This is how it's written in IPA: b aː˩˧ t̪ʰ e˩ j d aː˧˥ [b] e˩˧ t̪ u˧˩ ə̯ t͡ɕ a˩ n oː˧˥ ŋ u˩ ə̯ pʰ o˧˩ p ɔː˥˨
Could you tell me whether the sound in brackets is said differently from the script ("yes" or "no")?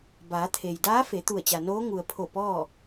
yes